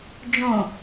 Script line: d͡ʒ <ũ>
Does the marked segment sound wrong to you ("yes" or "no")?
yes